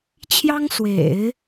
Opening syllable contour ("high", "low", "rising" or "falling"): high